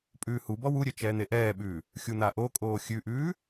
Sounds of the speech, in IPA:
pʼ ʉː h u b ɔ w u ɾʲ ø t͡ʃ ɛː n̪ e ʔ ɛː ɓ ʉː | xʲ u n̪ a ʔ o kʼ oː xʲ ʉ ʔ ʉː

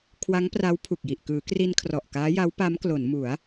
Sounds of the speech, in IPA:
kʰ w a˦˥ ŋ p r a˦˥ w pʰ u˨˩ k̚ j i˨˩ ʔ k ɯː˩˦ k r i˧ n kʰ r ɔ˨˩ ʔ k aː˦˥ j a˦˥ w p a˦˥ m k l o˩˦ n m u˩˦ a̯

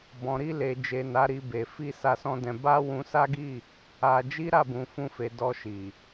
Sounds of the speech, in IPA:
b ɔ̃˨ ɾ i˧ l e˨ d͡ʒ e˨ n a˨˦ ɾ i˧ b e˨ f i˧ s a˧ s ɔ̃˧ d ɛ̃˧ b a˦ w ũ˧ s a˦ ɡ i˦˨ | a˧ d͡ʒ i˦ ɾ a˦˨ b ũ˨ f ũ˧ f e˨ d ɔ˧ ʃ i˨

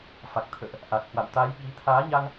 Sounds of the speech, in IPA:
f a˨˩ k̚ t̪ʰ ə̰ː˧˨ ʔ | ʔ a˨˩ k̚ h w a̰˧˨ w t̪ a˨˦ j ɓ i˨˦ t̪ʰ aː˨˦ ɲ a˧ ŋ

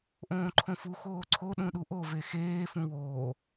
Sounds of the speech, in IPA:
ʔ õː ǃʰ õ f u x oː ǀʰ o ɗ ũ ɗ u ʔ o v e x eː f ũ w oː

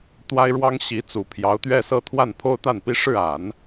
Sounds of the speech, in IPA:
t̪ w a˥ ɪ̯ ɻ w ɑ˥ ŋ ɕ i˧˥ t͡s u˨˩ pʰ j ɑ˧˥ ʊ̯ t̪ ɥ ɛ˥˧ s ɤ˥˧ t̪ʰ w a˥˩ n pʰ o˥ ʊ̯ t̪ a˥˩ n p i˥ ʂ ɻ̩˥˩ a˨˩˦ n

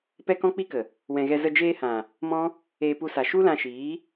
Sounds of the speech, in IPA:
p ɛ˦ k ɔ̃˦ k͡p i˦ k ə˨ | w ɛ̃˨ ɣ ɛ˧ z ə˧ d͡ʒ eː˧ h ã˨ | m ɔ̃˦ | eː˧ p u˧ s a˨ ʃ u˦ l ã˧ ʃ iː˨˦

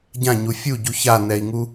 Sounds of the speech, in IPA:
ɟ ã ɲ u fʲ u ɟ u ç a n ɛ i̯ ŋ u

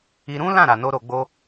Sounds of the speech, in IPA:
i˧ ɾ ũ˦ l ã˦˨ ɾ a˨ n o˧ ɾ o˧ ɡ͡b o˦

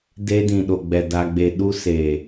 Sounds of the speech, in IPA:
d e˧ d ĩ˨ ɗ o˨ ɡ͡b ɛ˨ d a˧ ɡ͡b e˧ ɗ u˧ s eː˨

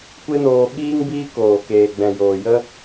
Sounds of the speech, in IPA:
kʷ e˦ n oː˧ ɓ iː˦ ŋ b iː˦ k oː˨ k eː˨ ɡ͡b ɛ̃˨ j oː˨ j ə˦

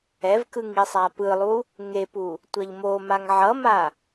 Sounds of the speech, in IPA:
ɛ v k ɯ ŋ i sˤ a p ɯ lˠ u | ŋ e p u | tʷ ʌ ʎ m o m a ŋ ʕ ʌ m a

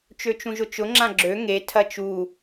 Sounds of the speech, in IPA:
t͡ʃ ø t͡ʃ ũ ʒ ʊ t͡ʃ ʊ ŋ͡ǁ ã ɡ͡ǁ ø ŋ e tʰ ɐ t͡ʃ u

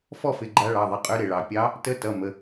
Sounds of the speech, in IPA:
f ɔ˥˨ f ɪ˩˧˩ ɡ͡ǃ a˧˥ ɭ ɑ˩˧˩ ðˤ ɪ˩˧˩ qʼ ø˧˥ ɾ ɪ˩ ɭ ɑ˩ pʲ ɑ˧˥ | t ə˧˥ t ʌ˩˧˩ m ə˩˧˩

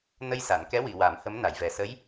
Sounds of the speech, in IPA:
n ə˧ j s a˨˩˨ n k ɛ˧˥ w i˨˩˨ w a˨˩˦ m h ə˧˥ m n a˨˩˨ j v ɛ˨˩ s ə˧˥ j

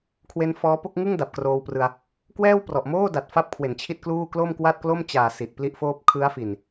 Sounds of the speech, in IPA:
kʰ w e˦˥ n f ɔː˦˥ p o˥˩ k̚ ŋ ɯ˥˩ ŋ d a˨˩ p̚ k r oː˧ w p r ɯ˧ a̯ | k w ɛː˥˩ w p r ɔ˨˩ ʔ m oː˥˩ d a˨˩ t̚ f a˥˩ p̚ kʰ w e˨˩ n t͡ɕʰ i˥˩ t̚ k l uː˥˩ k l o˥˩ m k w a˥˩ t̚ k l o˥˩ m t͡ɕ aː˨˩ s i˨˩ t̚ p l i˥˩ ʔ f oː˥˩ p̚ kʰ ɯ˦˥ a̯ f i˨˩ n

